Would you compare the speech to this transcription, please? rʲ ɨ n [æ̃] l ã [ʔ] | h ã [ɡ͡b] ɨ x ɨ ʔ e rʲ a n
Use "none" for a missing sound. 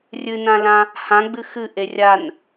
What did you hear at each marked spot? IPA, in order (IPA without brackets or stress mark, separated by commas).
ã, none, ɡ͡b